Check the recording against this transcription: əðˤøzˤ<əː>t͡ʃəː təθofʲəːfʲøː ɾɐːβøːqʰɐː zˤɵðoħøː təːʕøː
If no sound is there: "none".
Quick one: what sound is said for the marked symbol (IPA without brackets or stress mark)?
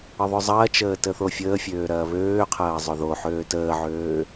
ɐː